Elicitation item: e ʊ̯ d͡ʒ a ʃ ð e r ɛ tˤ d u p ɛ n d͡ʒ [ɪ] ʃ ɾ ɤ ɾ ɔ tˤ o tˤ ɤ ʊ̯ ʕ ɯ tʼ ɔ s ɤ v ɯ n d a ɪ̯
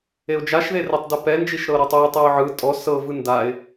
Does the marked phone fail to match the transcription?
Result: yes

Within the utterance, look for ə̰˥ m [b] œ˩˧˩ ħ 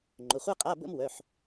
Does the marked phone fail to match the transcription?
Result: yes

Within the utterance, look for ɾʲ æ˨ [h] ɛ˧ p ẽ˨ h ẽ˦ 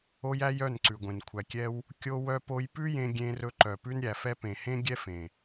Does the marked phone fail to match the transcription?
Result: yes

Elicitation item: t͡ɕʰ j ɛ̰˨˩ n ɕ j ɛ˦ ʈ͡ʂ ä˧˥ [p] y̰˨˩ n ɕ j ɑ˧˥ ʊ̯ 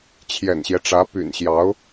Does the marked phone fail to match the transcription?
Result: no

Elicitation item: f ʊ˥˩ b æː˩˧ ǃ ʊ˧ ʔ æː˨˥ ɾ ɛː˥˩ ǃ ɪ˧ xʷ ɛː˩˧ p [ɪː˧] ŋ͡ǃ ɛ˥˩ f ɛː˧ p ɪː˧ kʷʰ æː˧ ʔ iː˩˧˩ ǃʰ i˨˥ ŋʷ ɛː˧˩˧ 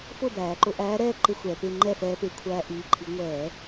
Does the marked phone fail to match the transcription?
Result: no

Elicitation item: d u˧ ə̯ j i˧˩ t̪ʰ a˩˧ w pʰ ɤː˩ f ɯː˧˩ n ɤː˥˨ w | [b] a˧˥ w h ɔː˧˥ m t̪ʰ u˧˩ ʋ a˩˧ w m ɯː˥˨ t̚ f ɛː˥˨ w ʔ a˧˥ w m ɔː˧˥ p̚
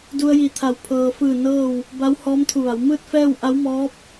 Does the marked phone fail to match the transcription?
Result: no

